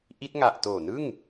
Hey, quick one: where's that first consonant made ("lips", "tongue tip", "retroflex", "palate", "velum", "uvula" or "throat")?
throat